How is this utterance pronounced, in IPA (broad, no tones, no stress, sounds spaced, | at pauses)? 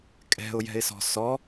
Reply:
kʼ ɛ̤ ʊ̯ j ɛ̤ ɪ̯ s ɔ̤ s ɔ